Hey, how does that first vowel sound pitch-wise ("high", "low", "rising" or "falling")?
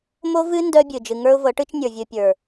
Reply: high